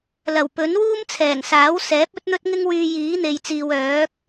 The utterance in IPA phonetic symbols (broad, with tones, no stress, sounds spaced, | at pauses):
l ɐ˨˩ w p ɵ˨˥ n w uː˥ m t͡sʰ ɛː˨˩ ŋ s aː˨˥ w s ɛː˨˥ p̚ ɵ˥ t̚ n̪ ɵ˥ t̚ ŋ ɪ˥ ŋ w yː˧ j iː˨˥ n̪ e˨ j t͡s iː˨ w œː˨˥ k̚